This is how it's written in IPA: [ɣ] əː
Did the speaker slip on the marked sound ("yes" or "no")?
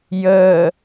yes